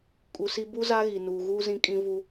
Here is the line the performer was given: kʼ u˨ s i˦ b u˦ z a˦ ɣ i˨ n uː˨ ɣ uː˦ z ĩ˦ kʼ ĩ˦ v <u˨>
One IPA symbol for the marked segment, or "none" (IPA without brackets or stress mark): u˦